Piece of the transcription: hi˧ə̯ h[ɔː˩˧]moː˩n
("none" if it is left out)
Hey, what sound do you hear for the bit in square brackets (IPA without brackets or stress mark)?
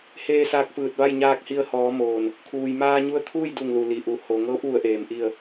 ɔː˩˧